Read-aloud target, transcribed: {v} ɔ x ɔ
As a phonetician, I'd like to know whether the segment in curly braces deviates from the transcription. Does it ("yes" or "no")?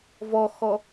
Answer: no